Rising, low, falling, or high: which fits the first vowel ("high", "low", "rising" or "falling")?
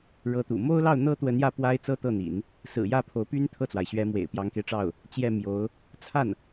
rising